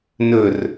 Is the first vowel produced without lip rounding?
no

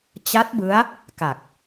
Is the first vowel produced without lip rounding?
yes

